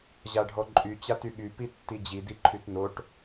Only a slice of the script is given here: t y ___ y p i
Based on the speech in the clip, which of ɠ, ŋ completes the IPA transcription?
ɠ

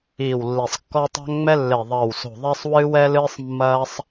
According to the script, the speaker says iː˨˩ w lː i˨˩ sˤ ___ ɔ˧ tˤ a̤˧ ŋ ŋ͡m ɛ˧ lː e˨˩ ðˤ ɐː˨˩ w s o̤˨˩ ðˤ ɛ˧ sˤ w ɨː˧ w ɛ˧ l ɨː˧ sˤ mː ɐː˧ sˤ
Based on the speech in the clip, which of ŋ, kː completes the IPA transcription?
kː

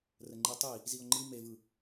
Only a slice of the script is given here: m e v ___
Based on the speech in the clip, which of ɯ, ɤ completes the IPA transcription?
ɯ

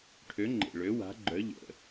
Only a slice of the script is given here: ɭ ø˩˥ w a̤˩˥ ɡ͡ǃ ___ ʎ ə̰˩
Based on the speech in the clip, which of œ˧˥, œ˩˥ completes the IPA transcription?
œ˩˥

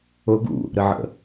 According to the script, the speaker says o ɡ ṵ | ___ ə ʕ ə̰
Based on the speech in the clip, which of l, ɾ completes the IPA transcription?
ɾ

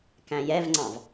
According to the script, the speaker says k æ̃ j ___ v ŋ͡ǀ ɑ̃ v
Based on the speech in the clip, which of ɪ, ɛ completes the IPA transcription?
ɛ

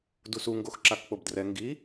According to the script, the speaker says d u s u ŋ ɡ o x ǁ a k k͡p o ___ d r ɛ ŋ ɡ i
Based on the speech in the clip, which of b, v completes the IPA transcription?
b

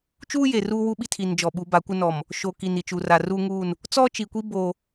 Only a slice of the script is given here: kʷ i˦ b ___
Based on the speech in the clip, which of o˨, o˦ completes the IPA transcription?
o˦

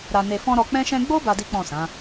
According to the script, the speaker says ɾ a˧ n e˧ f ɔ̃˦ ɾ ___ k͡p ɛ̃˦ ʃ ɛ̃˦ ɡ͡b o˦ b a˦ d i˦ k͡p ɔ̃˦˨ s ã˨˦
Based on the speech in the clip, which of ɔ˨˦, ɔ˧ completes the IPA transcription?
ɔ˧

